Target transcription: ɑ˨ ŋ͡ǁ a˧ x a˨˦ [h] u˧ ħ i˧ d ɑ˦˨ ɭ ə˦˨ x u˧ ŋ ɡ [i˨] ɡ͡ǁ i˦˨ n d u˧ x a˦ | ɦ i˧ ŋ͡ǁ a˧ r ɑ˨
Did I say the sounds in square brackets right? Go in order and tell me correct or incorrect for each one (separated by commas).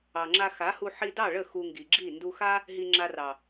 correct, correct